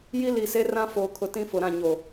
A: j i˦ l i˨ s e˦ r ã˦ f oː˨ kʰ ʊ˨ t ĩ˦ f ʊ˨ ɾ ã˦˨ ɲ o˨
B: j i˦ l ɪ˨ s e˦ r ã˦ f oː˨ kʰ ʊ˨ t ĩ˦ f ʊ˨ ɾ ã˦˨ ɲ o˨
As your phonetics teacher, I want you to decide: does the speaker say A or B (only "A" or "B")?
A